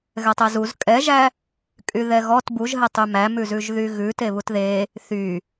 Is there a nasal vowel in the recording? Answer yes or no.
no